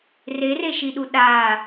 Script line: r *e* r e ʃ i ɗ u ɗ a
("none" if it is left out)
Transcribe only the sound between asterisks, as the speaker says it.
e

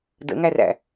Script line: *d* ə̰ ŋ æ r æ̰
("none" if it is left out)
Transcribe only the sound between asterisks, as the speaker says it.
d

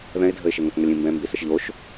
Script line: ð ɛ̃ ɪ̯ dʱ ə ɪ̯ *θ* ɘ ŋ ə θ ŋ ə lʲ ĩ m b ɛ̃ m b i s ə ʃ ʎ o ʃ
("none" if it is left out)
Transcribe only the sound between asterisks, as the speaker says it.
ʃ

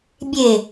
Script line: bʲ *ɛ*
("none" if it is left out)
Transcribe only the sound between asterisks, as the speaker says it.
e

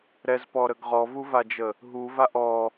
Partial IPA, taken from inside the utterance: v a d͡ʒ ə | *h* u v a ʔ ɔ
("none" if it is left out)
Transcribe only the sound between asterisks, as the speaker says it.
ɦ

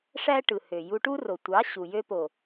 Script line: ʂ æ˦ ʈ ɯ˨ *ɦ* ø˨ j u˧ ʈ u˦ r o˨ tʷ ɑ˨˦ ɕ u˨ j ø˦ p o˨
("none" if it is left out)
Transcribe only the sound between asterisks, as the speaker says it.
h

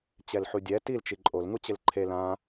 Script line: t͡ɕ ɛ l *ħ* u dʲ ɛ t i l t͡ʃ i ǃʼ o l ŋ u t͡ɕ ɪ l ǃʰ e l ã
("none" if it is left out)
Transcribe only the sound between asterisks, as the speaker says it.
ħ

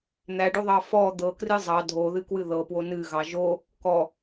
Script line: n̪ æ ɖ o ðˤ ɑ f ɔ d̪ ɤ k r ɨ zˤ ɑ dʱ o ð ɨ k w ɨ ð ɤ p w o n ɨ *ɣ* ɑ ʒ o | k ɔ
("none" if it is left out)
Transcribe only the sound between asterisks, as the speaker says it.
ɣ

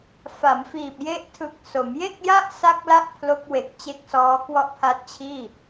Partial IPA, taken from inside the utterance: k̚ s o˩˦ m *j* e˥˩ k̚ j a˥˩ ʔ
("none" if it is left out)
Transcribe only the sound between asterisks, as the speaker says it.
j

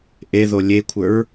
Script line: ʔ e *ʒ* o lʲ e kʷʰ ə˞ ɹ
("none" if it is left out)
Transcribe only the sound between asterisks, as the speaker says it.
ð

